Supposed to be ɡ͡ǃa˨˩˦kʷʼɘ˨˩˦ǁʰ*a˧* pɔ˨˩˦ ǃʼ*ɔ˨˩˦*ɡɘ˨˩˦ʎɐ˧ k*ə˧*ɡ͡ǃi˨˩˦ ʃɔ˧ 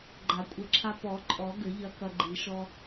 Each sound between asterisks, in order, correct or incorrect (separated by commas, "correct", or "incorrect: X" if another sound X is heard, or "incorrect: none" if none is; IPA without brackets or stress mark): correct, correct, incorrect: ɐ˧